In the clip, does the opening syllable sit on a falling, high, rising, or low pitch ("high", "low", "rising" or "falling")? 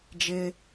high